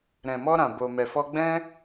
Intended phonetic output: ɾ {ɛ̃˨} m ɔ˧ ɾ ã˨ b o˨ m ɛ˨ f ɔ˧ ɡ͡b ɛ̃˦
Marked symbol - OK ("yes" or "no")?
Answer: yes